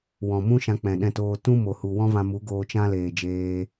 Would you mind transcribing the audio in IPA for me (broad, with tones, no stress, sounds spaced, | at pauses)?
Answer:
w ɔ̃˨ m ũ˦ ʃ ã˧ k͡p ɛ̃˨ ɗ ɛ̃˧ t oː˧ t ũ˦ m o˨ h u˨ w ɔ̃˦ v ã˧ m u˨˦ ɡ oː˧ t͡ʃ ã˦ l eː˨ d͡ʒ eː˧